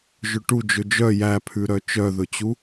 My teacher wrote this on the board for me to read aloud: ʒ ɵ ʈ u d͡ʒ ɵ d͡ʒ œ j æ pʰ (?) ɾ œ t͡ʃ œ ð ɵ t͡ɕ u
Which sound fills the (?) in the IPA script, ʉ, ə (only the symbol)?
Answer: ʉ